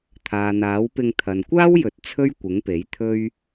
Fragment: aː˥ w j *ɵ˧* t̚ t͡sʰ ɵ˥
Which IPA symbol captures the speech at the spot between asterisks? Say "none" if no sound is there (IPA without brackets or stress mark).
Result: ɵ˨